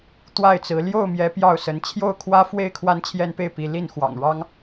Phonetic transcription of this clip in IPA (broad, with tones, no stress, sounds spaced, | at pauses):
t̪ w a˥˨ ɪ̯ t͡s ɹ̩˨˦ l j o˥˨ ʊ̯ m j ɛ˨˦ p j ɑ˥˨ ʊ̯ s ə˨˦ n t͡ɕʰ j o˥˨ ʊ̯ kʰ w ä˦ f w e˥˨ ɪ̯ kʰ w a˦ n t͡ɕʰ j ɛ˦ n p e˥˨ ɪ̯ p i˨˦ l i˥˨ n x w ɑ̰˨˩ ŋ ɻ ɑ˦ ŋ